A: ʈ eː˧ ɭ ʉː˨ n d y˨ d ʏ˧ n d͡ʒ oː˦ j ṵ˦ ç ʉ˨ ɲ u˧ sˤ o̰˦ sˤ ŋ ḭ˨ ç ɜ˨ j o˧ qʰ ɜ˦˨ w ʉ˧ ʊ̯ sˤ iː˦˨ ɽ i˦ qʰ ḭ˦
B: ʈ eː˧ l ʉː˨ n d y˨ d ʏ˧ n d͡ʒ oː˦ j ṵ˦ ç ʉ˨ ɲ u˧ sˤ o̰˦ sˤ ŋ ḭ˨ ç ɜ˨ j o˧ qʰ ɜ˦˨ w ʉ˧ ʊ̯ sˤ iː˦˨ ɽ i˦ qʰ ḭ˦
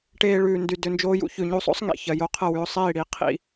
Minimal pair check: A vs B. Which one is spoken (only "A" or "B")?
A